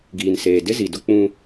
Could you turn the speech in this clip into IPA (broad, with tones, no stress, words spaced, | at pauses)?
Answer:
ɡiː˨nseː˨ dɪ˦zi˨dʊ˦ k͡pũ˦